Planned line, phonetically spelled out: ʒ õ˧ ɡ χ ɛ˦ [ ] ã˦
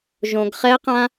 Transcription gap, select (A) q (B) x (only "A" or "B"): A